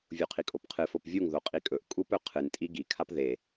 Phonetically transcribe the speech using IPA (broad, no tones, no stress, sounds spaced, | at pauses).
vʲ u qʰ i kʼ o p qʰ ɨ f o p vʲ u ŋ ð o qʼ i kʼ ɵ ʔ kʼ u p ɵ qʰ ɨ n tʼ i ɡ i kʰ a p ð e